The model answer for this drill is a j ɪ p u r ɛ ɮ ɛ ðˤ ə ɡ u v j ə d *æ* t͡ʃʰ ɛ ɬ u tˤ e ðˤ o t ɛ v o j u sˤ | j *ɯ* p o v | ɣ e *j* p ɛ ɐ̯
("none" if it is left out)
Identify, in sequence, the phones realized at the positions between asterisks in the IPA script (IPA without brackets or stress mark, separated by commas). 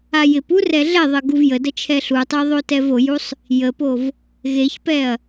ə, ə, ç